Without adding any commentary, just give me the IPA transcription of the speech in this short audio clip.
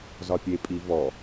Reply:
z ɒ pʲ e pʼ i v ɔ

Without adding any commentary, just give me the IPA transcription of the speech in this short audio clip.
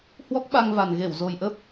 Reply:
h w ɔ˦˥ k̚ ɓ a˧ ŋ v a˨˩ n ɣ e˧˩ w z o˨˩ j ʔ ə˦˥ p̚

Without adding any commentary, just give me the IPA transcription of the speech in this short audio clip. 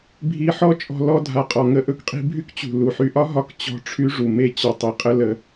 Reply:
bʱ i˧ ħ ɔ˦ t͡ʃʼ ɔ̤˧ l ɔ˧ dʱ a˨ qʼ ɔ˨ ŋ ə˧ ʔ ɵ˧ k qʼ i̤˧ bʱ y˦ k t͡ɕ ṳ˨ l u˨ ħ y˧ ʔ ɒ˦ ɦ ɒ˦ k t͡ɕ ɔ̤˦ ʈ͡ʂʰ y˧ ʐ u˨ m e˧ t͡ɕ ɒ˨ tˤ i˨ qʼ ə˧ l ə˧

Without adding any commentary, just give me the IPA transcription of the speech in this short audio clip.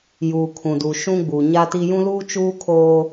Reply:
j uː˨ kʰ ũ˨ d u˨ ʃ ũ˦ ɡ͡b u˨ ɲ a˦ t i˦ j ũ˦ l uː˦ t͡ʃ uː˦ kʰ oː˦

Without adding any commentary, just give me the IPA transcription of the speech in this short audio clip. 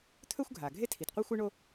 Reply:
t̪ʰ ɵ˥ xʷ ɡʱ a˩ ɡʱ e˥ tʰ i˩ t qʷ e˥ xʷ ɨ˥ ɳ o˥

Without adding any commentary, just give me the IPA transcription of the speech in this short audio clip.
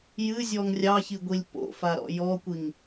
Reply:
j ɨ zʲ ɔ ŋ rʲ ɑ ç i ɡʷ i lʲ p o̰ f a ɾ ɔ̰ j ɔ kʷ i ŋ

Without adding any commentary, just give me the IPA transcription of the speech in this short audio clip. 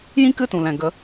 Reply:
j ĩ˦ k ɨ˦˨ t ũ˨ l ɛ̃˨ ɡ ə˨˦

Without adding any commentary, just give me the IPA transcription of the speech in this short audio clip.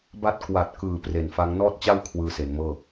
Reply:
b a˦˥ t̚ k w a˨˩ t̚ k ɯː˨˩ p r e˨˩ n f a˦˥ ŋ n ɔː˥˩ t̚ t͡ɕ a˥˩ w kʰ w ɯː˧ s e˩˦ n m ɤː˥˩

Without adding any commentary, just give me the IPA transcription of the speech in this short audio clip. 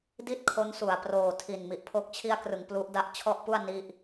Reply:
d i˥˩ t̚ kʰ o˦˥ n s u˨˩ a̯ p r oː˨˩ tʰ i˨˩ n m i˨˩ ʔ pʰ o˦˥ k̚ t͡ɕʰ i˧ a̯ k r ɯ˩˦ ŋ p l u˦˥ ʔ d a˥˩ ʔ t͡ɕʰ ɔ˥˩ ʔ p u˥˩ a̯ n i˥˩ ʔ

